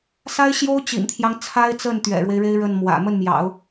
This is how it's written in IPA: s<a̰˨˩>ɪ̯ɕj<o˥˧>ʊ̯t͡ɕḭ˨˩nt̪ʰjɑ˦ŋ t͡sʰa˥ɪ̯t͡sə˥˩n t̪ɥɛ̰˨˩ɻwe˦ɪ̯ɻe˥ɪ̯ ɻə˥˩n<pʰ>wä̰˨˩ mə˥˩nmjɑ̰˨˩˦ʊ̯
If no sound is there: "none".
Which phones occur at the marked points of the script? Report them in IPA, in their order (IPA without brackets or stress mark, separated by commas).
a˥, o˥, m